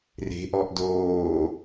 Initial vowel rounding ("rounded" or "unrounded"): unrounded